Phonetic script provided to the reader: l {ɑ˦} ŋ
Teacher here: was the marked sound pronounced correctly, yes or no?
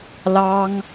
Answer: yes